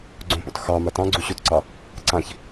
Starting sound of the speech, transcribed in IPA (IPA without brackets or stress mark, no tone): ɡ͡ǀ